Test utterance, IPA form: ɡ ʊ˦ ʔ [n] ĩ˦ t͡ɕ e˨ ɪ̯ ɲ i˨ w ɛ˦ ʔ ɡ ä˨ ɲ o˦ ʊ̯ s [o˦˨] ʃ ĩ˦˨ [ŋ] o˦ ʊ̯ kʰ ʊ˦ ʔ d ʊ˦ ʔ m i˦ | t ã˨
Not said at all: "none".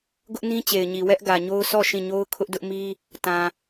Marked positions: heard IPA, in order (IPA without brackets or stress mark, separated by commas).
n, ɔ˦˨, ɲ